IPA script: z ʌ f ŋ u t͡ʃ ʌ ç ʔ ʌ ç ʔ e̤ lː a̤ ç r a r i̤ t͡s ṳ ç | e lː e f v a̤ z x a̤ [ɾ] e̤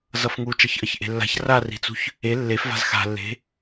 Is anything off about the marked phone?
yes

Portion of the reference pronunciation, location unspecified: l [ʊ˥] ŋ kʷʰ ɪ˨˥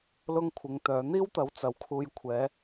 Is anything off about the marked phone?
no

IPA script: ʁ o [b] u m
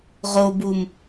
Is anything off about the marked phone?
no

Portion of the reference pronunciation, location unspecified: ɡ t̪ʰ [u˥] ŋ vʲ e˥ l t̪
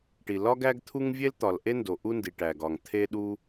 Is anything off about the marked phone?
no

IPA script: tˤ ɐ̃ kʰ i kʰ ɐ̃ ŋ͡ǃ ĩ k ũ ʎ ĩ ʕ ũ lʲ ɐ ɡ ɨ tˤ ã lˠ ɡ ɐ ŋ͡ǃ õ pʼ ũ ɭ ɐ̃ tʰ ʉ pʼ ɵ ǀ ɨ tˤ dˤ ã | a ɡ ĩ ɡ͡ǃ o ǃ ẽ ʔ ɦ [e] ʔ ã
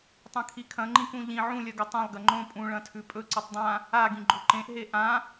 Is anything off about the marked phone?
no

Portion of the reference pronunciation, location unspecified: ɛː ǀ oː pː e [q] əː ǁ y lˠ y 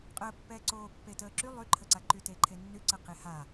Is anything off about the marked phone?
yes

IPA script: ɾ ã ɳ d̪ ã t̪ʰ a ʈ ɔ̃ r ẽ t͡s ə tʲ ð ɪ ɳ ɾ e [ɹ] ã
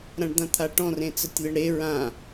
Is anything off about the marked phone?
no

